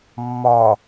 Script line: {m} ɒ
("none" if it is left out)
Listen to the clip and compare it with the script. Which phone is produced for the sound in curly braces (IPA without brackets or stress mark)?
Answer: mː